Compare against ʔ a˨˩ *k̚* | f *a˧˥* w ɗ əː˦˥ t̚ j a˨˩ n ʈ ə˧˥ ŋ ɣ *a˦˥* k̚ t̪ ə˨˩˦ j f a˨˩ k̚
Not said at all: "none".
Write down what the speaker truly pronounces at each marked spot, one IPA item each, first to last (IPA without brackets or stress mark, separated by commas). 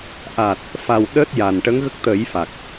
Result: t̚, a˨˩, ə˦˥